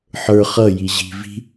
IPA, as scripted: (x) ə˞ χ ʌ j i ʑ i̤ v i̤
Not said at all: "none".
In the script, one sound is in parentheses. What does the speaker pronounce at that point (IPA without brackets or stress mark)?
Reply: ħ